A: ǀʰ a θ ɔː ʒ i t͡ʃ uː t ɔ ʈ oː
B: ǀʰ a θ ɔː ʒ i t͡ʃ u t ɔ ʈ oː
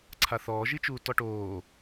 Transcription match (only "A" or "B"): A